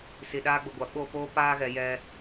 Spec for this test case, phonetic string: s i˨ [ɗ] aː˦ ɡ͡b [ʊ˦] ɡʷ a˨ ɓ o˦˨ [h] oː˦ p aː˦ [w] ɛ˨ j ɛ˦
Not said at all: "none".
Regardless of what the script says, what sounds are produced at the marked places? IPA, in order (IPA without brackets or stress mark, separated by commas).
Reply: ɗ, ʊ˨, p, ɣ